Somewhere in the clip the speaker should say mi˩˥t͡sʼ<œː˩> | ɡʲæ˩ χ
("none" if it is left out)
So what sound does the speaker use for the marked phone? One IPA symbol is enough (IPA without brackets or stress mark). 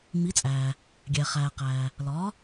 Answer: æː˩